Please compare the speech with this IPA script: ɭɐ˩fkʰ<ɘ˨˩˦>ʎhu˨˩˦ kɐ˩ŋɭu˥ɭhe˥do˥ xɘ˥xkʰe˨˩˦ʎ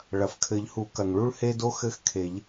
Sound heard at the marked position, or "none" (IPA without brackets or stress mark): ɘ˨˩˦